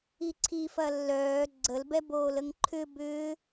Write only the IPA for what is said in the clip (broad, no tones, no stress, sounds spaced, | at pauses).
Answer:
i ǀʰ i f ɐ lː œː ɡ͡ǀ ə l b ɛ b oː l ə ŋ ǃʰ ʏ b ʏː